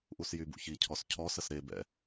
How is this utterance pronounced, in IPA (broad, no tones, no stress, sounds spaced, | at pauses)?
ʔ u s j y b ṵ ç i cʰ ɔ s cʰ ɔ s ə s ɾ e b ɛ̰